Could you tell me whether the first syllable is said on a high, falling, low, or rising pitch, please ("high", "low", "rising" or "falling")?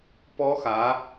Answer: high